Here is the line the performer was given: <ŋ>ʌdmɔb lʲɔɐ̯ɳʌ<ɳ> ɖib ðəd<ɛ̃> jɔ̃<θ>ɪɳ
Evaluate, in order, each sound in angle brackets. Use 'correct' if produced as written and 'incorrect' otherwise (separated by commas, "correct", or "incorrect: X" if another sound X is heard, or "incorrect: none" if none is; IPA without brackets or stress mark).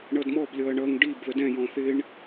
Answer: incorrect: ɳ, incorrect: ŋ, correct, correct